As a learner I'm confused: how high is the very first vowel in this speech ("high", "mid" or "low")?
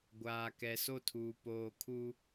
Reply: low